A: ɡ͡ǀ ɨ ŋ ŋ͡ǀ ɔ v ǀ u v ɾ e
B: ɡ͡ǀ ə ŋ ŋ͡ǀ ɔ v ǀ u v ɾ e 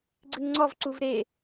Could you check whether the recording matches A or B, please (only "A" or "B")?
A